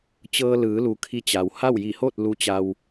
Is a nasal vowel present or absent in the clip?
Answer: absent